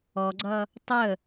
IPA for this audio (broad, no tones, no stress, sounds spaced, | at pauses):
ɔ ɡ͡ǀ ʌ | tˤ ə